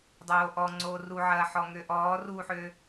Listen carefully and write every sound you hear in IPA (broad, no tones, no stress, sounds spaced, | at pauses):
dˤ oː ʔ ɔ ŋ͡ǀ oː r u ʕ ɐː ħ ɔ ŋ ø ʔ ɔː r u ħ ø